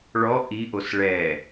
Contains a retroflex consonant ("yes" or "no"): yes